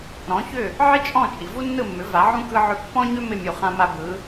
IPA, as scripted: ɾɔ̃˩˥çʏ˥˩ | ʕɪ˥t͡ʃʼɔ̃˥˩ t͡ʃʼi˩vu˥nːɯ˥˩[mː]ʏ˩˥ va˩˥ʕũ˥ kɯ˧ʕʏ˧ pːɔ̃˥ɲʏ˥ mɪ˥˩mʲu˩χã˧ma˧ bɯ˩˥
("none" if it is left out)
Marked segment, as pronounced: mː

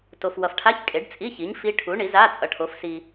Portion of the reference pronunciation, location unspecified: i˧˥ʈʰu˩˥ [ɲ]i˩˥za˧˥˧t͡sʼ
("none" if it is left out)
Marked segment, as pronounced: ɳ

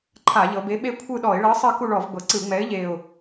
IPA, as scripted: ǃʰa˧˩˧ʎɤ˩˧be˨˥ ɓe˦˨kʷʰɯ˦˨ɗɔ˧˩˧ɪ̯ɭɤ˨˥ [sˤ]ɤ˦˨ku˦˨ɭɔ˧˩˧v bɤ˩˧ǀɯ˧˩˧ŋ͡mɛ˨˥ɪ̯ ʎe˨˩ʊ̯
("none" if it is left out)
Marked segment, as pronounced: sˤ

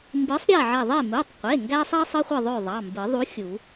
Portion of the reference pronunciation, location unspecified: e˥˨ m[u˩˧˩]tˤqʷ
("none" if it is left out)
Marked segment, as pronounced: u˩˧˩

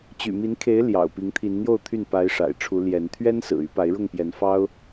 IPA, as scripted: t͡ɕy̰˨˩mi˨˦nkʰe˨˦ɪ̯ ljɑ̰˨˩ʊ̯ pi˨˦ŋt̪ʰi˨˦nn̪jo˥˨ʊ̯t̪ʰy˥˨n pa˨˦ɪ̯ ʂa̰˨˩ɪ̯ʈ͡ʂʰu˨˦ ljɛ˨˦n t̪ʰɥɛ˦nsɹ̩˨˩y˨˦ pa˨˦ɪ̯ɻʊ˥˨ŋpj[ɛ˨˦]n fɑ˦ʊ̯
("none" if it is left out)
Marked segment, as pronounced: ɛ˨˦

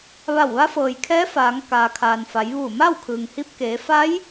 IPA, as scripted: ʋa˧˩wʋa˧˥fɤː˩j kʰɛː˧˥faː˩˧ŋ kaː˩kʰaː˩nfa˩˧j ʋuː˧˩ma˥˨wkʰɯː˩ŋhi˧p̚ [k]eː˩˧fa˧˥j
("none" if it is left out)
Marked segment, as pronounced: k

